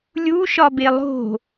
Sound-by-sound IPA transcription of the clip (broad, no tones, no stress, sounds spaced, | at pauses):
lʲ u ʃ ɒ b e lˠ o̤